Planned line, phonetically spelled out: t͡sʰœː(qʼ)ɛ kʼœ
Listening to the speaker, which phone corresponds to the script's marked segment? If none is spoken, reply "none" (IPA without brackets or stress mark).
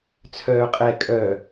qʼ